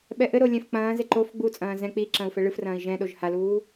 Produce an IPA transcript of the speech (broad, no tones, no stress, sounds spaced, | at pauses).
ɓ ɛ ʔ ɘ ɾ o lʲ ɛ̃ f k͡p ɐ̃ː z e ǃ o f ɡ͡b u t͡sʼ ɐ̃ː z ɛ̃ k͡p i ǁ ɐ̃ u̯ f ɛ ɭ ɨ f r ɐ̃ː i̯ ʒ ɛ̃ ɗ o ʒ h a l uː